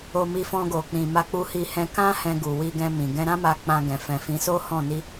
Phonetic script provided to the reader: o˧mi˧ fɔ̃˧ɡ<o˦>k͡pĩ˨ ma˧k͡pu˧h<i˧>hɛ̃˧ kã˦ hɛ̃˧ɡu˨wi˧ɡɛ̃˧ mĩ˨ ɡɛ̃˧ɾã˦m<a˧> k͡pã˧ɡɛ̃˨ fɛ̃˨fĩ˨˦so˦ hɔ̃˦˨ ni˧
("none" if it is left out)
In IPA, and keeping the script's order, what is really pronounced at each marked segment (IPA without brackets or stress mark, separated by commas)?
o˨, i˧, a˧